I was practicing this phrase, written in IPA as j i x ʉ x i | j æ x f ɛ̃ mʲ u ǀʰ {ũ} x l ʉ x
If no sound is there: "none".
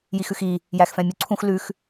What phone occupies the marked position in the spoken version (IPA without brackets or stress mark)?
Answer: ũ